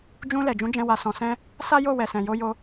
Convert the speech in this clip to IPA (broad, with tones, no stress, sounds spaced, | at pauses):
d͡ʒ ũ˧ l ɛ˨ d͡ʒ ũ˨˦ d͡ʒ ɛ̃˧ w a˨ s ɔ̃˨ s ɛ̃˧ | s a˦ j o˦˨ w ɛ˨ s ɛ̃˨ j o˧ j o˧